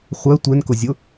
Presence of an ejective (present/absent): absent